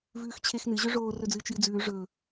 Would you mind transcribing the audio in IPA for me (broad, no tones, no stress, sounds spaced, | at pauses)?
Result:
v ʉː x t͡ɕʰ e x n ɨ ʑ ɵ ʐ oː r ɵ d͡z ɨː t͡ʃ j ɨ d͡z ʉː ʐ ɵː